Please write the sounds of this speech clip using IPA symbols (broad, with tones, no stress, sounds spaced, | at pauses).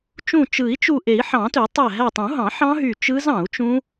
t͡ʃ ũ˧˩ t͡ʃ ɯ˨˩˦ i̯ t͡ʃ u˧˩ ʔ e˨˩˦ i̯ ħ ɑ̃˨˩˦ t ø˨˩˦ tˤ æ˧˩ ɦ æ˧˩ tˤ ũ˨˩˦ ɦ ɑ̃˨˩˦ ħ ɑ̃˦˥ ɦ y˧˩ t͡ʃ ɯ˦˥ z ɑ̃˨˩˦ u̯ t͡ʃ ũ˦˥